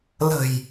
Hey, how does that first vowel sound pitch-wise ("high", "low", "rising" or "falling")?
low